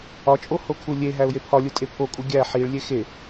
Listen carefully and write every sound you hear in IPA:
ɒ t͡ʃʼ o h o kʰ u lʲ e ɦ æ ʊ̯ j e pʰ ɒ lʲ u tʼ e pʰ o kʼ u ɡʲ æ ħ i ɭ lʲ e x e

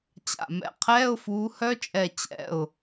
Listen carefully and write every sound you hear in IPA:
t͡ɕ a̰˧˩ m ɛ̰˨˦ qʰ ɛː˧˥˧ ʊ̯ f uː˨˦ h œ˦˥ t͡ʃʼ ɛ˧˩ t͡ɕ ɛ̰˩˧˩ ʊ̯

